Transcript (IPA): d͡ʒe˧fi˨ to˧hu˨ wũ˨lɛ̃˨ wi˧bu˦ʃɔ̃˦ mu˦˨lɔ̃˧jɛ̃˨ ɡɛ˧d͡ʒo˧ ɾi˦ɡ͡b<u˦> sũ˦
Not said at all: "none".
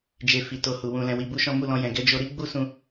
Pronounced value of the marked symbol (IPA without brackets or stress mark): u˦